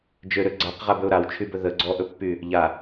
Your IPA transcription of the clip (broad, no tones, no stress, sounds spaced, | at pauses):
d͡ʒ ø ɾ ø ɡ͡ǀ a q ʁ a b ɵ ʊ̯ ɾ a w t͡ʃʰ y b ɵ ð ə ɡ͡ǀ ɔ ʔ ɵ pː y | ʎ a